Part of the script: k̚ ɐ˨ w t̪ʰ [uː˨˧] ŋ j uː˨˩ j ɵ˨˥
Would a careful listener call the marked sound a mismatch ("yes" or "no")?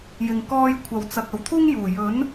yes